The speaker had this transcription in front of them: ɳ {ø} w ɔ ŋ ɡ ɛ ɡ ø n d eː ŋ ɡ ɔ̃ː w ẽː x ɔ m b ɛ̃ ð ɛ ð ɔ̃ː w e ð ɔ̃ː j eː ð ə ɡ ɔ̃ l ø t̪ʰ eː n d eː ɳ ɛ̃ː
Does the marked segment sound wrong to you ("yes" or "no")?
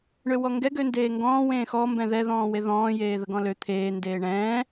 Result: no